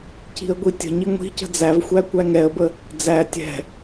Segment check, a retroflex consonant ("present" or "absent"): absent